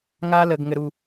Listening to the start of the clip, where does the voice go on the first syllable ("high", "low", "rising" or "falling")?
high